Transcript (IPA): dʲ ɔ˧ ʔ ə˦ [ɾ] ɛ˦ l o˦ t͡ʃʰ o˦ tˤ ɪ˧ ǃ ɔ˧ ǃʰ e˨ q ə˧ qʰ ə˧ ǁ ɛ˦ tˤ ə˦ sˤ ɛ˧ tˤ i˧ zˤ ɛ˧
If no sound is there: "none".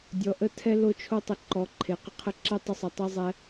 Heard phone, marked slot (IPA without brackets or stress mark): tʰ